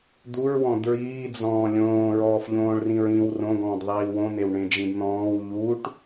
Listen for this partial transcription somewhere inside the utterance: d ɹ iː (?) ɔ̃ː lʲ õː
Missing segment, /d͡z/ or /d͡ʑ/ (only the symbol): d͡z